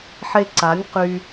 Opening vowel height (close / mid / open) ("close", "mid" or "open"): mid